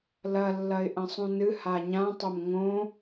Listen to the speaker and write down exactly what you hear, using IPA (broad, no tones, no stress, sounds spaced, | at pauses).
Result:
l ɐ lː ɐ ɪ̯ ʔ ɐ̃ sˤ ũ n ɨ h a ɲ ã tˤ o m ŋ õ